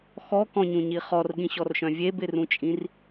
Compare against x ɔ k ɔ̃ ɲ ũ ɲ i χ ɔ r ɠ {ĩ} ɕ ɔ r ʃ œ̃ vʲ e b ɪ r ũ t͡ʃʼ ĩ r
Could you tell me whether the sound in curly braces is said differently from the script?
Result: no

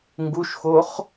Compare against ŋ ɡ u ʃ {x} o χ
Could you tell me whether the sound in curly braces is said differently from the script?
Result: no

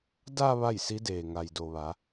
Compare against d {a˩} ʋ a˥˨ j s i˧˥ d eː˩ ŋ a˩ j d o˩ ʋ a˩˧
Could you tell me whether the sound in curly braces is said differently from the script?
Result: yes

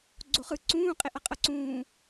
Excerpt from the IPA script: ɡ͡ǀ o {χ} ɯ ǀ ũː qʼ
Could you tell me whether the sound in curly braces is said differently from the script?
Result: no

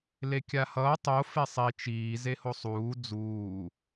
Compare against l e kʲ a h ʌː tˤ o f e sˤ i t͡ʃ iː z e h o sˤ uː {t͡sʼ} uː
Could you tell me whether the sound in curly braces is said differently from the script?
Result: yes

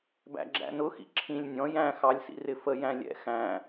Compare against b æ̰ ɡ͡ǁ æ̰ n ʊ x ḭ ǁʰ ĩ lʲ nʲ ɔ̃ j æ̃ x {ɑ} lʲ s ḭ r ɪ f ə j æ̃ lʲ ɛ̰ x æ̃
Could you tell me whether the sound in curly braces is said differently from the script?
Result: no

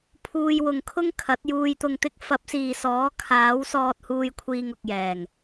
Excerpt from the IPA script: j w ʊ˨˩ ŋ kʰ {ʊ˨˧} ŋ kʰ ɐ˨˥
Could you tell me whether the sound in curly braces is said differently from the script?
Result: yes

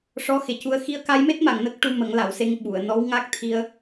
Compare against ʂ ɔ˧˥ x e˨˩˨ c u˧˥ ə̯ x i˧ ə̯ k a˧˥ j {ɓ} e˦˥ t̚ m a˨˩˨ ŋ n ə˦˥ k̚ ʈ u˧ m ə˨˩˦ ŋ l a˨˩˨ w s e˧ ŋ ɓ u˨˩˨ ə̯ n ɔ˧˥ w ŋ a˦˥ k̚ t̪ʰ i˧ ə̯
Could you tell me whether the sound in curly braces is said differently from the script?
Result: yes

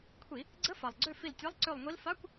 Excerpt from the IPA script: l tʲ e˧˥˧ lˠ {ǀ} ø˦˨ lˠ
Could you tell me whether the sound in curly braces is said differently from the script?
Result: no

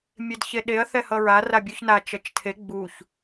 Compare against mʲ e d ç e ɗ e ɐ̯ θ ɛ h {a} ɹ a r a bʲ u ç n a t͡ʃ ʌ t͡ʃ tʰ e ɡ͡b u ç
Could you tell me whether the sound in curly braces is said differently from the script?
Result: yes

